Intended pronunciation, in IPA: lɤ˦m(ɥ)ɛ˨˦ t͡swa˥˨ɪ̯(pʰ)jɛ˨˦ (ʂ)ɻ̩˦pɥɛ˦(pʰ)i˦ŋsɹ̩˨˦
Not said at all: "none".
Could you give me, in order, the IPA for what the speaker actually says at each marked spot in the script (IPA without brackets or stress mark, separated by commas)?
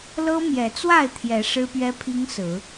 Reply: j, t̪ʰ, ʂ, pʰ